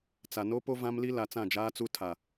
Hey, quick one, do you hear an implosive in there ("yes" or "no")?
no